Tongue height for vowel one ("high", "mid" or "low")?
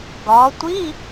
low